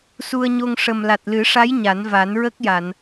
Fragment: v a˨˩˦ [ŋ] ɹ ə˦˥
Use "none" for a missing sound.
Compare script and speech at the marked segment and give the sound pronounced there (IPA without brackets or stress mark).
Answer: n